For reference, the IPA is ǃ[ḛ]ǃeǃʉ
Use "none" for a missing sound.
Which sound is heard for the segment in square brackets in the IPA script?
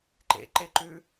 ḛ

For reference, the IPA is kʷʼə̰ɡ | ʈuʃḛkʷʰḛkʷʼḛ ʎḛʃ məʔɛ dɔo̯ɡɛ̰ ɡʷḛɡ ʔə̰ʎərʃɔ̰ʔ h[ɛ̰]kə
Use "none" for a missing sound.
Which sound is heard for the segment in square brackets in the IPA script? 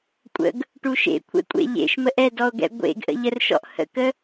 ə̰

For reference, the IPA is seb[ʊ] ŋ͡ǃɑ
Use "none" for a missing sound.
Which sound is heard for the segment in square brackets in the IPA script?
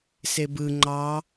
ɯ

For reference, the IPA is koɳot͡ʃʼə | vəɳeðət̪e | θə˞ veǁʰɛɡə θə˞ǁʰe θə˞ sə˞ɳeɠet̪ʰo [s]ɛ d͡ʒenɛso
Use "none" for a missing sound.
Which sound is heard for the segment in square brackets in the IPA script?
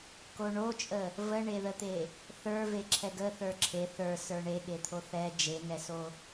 θ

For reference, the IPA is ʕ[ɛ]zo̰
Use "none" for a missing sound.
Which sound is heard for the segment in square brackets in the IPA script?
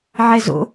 ɛ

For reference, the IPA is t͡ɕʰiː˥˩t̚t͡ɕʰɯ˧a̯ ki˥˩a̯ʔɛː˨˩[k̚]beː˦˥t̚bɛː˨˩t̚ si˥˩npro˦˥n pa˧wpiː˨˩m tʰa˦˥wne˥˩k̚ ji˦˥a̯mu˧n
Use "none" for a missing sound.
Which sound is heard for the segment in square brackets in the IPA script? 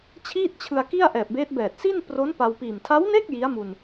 p̚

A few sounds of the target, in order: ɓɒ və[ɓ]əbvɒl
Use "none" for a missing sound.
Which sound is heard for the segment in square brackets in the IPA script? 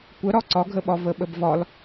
ɓ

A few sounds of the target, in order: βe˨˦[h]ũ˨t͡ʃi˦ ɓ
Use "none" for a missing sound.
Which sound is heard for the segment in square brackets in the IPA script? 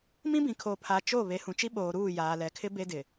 h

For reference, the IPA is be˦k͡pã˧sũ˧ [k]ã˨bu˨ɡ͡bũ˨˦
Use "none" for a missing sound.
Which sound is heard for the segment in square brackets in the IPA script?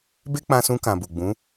k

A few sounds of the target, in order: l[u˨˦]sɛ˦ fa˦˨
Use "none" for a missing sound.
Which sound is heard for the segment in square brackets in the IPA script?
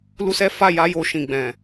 u˦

